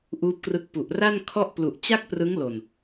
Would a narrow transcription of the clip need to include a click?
no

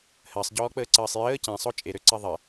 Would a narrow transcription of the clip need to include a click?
yes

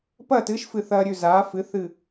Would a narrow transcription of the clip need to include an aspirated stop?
no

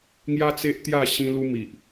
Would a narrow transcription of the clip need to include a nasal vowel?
yes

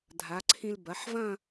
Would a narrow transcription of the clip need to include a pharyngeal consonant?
yes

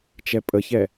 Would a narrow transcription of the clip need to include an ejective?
yes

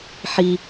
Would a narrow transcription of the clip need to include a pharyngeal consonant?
yes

